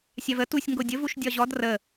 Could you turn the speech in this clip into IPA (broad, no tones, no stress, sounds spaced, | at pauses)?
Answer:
sʲ a v ə t u sʲ ŋ ɡ o dʲ ə v u ʃ dʲ ɒ ʑ ɔ d r ə